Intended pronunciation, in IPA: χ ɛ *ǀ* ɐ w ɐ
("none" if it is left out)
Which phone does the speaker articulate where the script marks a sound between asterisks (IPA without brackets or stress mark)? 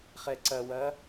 ǀ